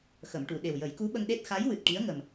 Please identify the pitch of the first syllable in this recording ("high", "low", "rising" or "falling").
low